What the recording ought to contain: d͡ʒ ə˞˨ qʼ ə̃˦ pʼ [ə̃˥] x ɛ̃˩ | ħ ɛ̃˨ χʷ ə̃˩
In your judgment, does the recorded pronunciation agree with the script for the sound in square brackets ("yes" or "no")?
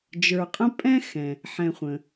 no